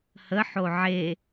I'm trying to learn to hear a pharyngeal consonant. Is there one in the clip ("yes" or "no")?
yes